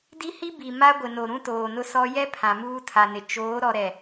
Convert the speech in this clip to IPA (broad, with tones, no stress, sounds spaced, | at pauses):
d i˦ h i˦ b i˨ m a˦ ɡʷ ɪ˨ n o˨ ɾ ũ˦ t oː˨ n ʊ˦ s ɔ˦ j ɛ˦ pʰ ã˨ m uː˦ tʰ a˨ n ɪ˨ t͡ʃ oː˨˦ ɾ ɔ˨ ɾ ɛ˨